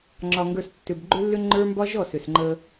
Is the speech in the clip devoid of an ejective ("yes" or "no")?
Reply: yes